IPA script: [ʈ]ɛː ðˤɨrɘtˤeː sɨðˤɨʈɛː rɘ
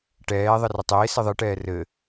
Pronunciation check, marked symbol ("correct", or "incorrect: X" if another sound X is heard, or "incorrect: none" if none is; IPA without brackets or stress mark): correct